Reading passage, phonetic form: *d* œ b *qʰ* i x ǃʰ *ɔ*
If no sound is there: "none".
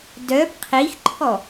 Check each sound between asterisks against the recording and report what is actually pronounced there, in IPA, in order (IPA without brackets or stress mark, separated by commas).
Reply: d, qʰ, ɔ